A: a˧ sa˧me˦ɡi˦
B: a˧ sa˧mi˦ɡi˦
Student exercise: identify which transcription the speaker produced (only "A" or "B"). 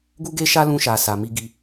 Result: B